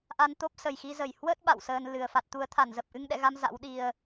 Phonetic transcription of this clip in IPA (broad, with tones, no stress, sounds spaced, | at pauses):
ʔ a˧ n t̪ o˦˥ p̚ s ə˨˩ j x i˧ z ə˧˩ j h w ə˦˥ t̚ ɓ a̰˧˨ w s əː˧ n l ɨ˨˩ ə̯ f a˨˩ t̚ t̪ u˨˦ ə̯ t̪ʰ a˧˩ n z ə˨˩ p̚ ʔ ɨ˧ ŋ ɗ ɛ̰˧˨ ɣ a˧ m z a̰˧˥ w ɗ i˨˩ ə̯